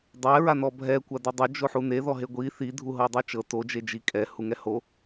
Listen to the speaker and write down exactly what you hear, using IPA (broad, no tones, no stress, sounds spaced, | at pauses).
dˤ ɛ ɹ a n ɔ bʱ ɛ kʷ a d u dˤ o d͡ʒ o ħ u n e ð ɔ ɦ e ɡʷ i θ i dʱ u ɦ ɤ dˤ o t͡ʃ ɤ t o d͡ʒ e d͡ʒ i kʼ ɛ h u ŋ ɛ h o